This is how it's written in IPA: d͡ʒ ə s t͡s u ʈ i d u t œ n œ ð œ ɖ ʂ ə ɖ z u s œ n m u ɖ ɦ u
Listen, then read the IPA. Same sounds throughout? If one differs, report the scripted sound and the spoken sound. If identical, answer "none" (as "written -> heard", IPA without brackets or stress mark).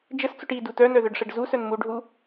none